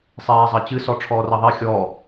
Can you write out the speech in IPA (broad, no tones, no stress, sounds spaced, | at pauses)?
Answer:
sˤ ɛː zˤ ɐ t͡ɕ ɨ s ɔ ʈ͡ʂʰ ɔː r ɐ ðˤ ɛ xʲ ɔ